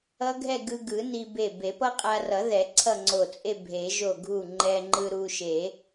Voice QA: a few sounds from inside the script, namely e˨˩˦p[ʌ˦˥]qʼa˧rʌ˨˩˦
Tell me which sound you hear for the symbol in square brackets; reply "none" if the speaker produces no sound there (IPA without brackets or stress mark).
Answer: ʌ˦˥